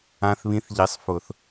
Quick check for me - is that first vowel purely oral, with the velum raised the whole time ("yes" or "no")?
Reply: no